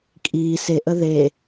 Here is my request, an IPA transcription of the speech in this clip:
kʼ i s e ʔ ə ð e

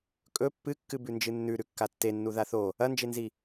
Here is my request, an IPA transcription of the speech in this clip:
kʼ ɵ pː ɨ kː ɨ b ʉ n d͡ʒ ɨ nː ʉ ɾ ʉ kː a tː e nː u ð a θ o | ɐ n d͡ʒ e n z i

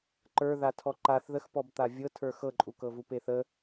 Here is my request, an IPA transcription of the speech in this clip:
ǃ ə˞ ð a tʰ ɔ ǃ a θ ð ə x p ɔ b t̪ a vʲ ɤ tʰ ə˞ x ɤ ǃʼ u k ɤ v u p e θ ə

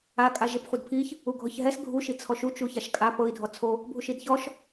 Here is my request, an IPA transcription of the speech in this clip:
a kʼ a ʒ e p χʷ ɯ d pʰ i ç | u ɡʱ ɔ ç ɦ ɛ s ɡʱ u ʃ i t͡sʰ ɔ ʃ u t͡ʃ u ç a ʃ kʼ a p ɤ i̯ dʱ ɔ t͡sʰ o | bʱ u ʃ i d ç ɔ ʃ

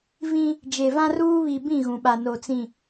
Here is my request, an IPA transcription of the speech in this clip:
v ĩ˦ | d͡ʒ e˨ v ã˦ r uː˦ β i˨ b ĩ˦˨ ɣ ũ˨ ɓ a˨ n o˨ t͡s ĩ˨

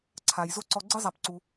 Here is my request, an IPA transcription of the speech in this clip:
ǀʰ a˩ j z o˥ ǀ ɔ˧ ɡ͡ǀ ɯ˥ zˤ a˩ p ǀ u˩

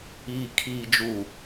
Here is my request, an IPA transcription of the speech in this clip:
iː˨ kʰ iː˨ d͡ʒ u˨

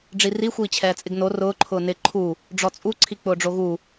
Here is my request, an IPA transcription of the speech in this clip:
ɖ͡ʐ i r i xʷ iː t͡ɕʰ ɛː t͡sʼ ɪ ɡ n o r ʊː ǃʰ ʊː n ɪ ǃʰ u | ɖ͡ʐ ɔ t͡sʼ u ǀʰ i k͡p ʊː ɖ͡ʐ o ɣ u

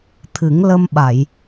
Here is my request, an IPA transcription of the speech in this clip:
t̪ʰ ɨ˨˩˦ ŋ l ə˧ m ɓ a˨˩˨ j

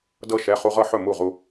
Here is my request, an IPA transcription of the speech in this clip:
d ɤ˧ ʃ ɛ˩˧˩ χ u˧ ʁ ɤ˥˩ ħ ɵ˥˩ m u˥˩ ʁ u˧

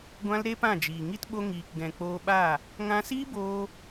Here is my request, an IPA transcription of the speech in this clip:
ɡʷ ã˦ l ɾ e˦ p ã˦˨ d͡ʒ iː˨ ŋ i˦ t ɓ o˧ ŋ iː˨ k ɡ ɛ̃˨ k͡p oː˧ ɓ a˦˨ | ŋ ã˧ s iː˦ b oː˧

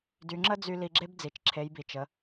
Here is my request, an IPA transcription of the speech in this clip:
d y˩˧ ŋ͡ǁ ə˥ d͡z y˧ l i˧ ɡ͡ǁ e˥ b d͡z i˩ t͡ʃ ǁʰ e˩˧ j b i˩ t͡ʃ ə˩˧

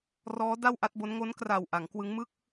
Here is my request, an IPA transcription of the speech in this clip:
r ɔː˦˥ d a˥˩ w ʔ a˦˥ t̚ b o˦˥ n ŋ o˦˥ n k r a˨˩ w ʔ a˩˦ ŋ k w ɯ˦˥ ŋ m ɯ˥˩ k̚

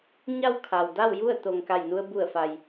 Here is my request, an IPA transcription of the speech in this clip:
ɲ a˥˨ w kʰ a˩ w d a˥˨ w j u˥˨ ə̯ t̪ o˩ ŋ k a˧˩ j n u˧ ə̯ b u˧˩ ə̯ f a˩ j

